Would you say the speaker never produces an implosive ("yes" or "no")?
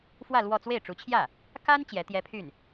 yes